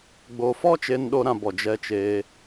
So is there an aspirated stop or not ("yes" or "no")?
no